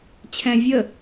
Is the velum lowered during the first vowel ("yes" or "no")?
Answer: yes